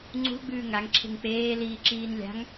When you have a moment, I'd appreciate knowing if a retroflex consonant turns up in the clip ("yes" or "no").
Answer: no